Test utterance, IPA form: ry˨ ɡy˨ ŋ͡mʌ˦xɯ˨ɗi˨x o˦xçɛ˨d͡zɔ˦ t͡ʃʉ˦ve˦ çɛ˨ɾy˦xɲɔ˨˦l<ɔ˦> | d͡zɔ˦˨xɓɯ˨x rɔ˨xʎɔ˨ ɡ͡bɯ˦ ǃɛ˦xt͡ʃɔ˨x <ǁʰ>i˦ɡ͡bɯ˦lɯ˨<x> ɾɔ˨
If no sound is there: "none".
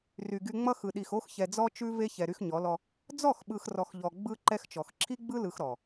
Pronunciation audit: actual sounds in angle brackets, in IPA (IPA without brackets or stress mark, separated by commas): ɔ˦, ǁʰ, x